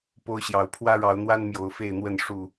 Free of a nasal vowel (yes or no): yes